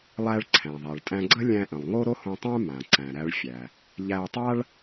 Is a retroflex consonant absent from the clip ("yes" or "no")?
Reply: no